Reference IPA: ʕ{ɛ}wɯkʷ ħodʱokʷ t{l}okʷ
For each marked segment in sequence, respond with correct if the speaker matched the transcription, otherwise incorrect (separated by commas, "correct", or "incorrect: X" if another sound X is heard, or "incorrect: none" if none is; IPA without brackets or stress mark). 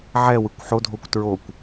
correct, incorrect: ɹ